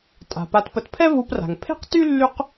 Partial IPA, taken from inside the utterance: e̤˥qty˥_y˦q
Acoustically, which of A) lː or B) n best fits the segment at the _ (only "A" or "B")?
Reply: A